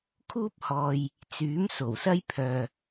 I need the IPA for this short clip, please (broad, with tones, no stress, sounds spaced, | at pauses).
kʰ uː˥ p̚ h ɔː˨ j | t͡s yː˨˥ m s o˨˩ w s ɐ˥ j pʰ œː˨